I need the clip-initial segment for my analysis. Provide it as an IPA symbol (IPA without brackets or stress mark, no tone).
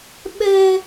ɓ